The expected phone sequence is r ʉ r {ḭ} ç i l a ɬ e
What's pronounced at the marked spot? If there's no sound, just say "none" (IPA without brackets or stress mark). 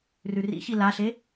ḭ